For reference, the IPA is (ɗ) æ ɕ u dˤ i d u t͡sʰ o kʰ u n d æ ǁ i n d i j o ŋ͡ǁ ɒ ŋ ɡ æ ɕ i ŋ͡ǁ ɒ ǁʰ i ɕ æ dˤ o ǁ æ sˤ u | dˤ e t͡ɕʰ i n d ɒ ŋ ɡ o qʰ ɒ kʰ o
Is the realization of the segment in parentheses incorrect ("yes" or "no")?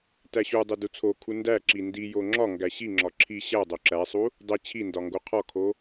yes